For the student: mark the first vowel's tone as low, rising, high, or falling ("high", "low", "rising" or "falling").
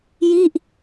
falling